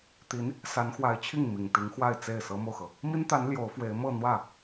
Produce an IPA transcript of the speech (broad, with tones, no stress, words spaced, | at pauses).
t̪i˧˥n | sa˧˥nxwa˧˥ɪ̯t͡ɕʰi˥˩ŋ mi˨˩ŋt̪i˧˥ŋxwa˥˧ɪ̯ t͡se˥˩ɪ̯sɤ˥mo˨ʊ̯xɤ˩ | mi˥nt̪a˧˥n ljo˧˥ʊ̯fwe˧˥ɪ̯ mɤ˥˧n̪wä˥˩